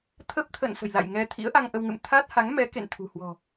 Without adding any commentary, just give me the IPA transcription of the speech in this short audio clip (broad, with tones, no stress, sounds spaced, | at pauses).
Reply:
t̪ʰ ə˦˥ p̚ t̪ʰ ə̰˧˨ n s ə̤˨˩ j l a̰˧˨ j ŋ ɛ˧ t̪ʰ ḭ˧˥ ə̯ ʔ a˧ ŋ ʔ ə˧ w ŋ ɨ̰˧˨ m t̪ʰ a˦˥ t̚ h a˨˦ ŋ m ɛ˨˦ k ḛ˧˨ n t̪ʰ ṳ˨˩ h w ɔ̤˨˩